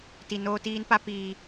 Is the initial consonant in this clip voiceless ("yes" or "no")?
yes